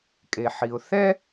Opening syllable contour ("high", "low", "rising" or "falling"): low